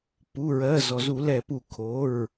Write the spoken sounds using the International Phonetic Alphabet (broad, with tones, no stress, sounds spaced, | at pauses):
p u˩˧˩ ɹ ɜ˩˧˩ z ɔ˩ z u˧˩˧ l ɛ˧˩˧ p u˧˩˧ kʰ o˩˧˩ ɹ